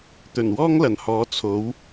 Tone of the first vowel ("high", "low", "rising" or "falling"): low